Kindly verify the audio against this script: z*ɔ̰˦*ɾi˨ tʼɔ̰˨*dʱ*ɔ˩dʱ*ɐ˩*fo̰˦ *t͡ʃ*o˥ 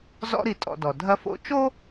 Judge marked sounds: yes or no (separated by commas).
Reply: yes, no, no, yes